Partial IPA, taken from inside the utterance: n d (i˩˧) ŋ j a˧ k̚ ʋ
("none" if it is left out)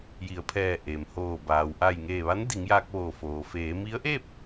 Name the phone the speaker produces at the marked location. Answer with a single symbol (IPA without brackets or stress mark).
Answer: i˩˧